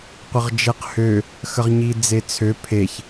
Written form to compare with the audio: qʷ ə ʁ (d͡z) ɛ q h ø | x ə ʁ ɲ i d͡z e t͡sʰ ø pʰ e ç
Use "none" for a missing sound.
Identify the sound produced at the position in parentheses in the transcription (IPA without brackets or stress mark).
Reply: d͡ʒ